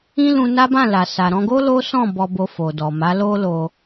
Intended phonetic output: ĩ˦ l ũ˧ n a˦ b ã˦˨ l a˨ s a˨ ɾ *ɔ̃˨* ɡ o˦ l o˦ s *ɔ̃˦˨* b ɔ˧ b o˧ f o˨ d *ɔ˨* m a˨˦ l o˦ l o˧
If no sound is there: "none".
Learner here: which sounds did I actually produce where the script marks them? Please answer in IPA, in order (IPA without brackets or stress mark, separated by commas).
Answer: ɔ̃˧, ɔ̃˦˨, ɔ˨